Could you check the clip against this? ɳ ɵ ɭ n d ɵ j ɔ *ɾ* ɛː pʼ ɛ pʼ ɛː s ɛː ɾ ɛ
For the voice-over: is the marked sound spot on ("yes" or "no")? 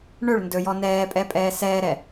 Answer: no